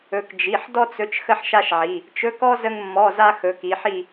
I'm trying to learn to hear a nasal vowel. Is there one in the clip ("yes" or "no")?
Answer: no